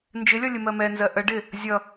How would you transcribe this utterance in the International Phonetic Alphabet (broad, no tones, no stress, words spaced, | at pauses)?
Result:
nd͡ʒɪlʲɒ lʲəmɜmɛnzɜ ʔə ɖɪ | zʲʌ